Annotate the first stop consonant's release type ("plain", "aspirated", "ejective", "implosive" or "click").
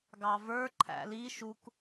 plain